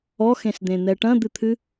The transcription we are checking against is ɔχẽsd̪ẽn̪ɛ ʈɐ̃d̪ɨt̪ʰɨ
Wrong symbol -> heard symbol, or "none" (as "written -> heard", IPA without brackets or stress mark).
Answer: χ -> x